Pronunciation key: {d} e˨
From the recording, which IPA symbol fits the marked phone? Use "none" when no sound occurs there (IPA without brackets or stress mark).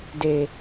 d